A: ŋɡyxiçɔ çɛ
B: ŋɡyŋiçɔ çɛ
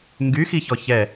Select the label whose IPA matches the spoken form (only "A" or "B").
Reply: A